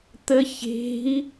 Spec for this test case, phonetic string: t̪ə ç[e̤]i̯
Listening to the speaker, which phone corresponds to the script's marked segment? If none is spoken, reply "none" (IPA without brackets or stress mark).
e̤